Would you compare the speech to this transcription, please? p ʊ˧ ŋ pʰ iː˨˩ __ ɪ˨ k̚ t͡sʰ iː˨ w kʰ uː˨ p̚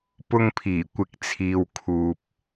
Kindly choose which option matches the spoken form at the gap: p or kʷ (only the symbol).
kʷ